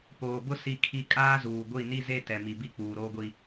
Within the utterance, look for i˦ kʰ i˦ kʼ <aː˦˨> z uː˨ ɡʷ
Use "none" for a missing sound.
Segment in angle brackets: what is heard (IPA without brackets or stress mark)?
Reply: aː˦